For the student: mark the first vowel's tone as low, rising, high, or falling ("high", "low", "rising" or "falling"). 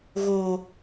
low